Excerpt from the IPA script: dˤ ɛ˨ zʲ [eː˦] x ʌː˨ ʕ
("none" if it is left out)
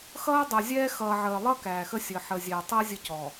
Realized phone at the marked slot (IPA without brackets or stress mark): ɛː˦